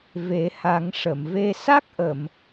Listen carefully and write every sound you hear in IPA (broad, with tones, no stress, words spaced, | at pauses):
ve˨˩˦ha˨˩˦ŋʂə˨˩˨mve˧ sa˦˥k̚ʔə˨˩˨m